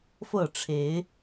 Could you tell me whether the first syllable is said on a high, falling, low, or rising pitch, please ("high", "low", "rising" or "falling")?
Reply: falling